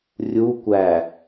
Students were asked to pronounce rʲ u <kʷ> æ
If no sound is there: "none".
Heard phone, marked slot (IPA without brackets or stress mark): kʷ